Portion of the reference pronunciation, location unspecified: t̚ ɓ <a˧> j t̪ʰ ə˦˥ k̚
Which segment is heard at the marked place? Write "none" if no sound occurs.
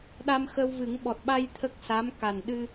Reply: a˧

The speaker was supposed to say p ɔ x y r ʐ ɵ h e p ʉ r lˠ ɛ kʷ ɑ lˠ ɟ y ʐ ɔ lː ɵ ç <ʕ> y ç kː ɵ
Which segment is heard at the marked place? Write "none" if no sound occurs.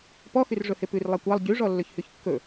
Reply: h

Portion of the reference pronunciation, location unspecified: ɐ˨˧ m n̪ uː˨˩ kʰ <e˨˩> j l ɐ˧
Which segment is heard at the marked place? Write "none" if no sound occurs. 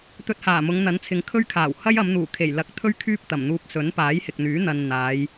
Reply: e˨˩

